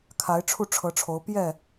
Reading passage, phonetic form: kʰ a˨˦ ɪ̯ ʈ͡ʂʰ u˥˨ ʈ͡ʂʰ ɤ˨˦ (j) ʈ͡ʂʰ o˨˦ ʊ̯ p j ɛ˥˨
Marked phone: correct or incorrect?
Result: incorrect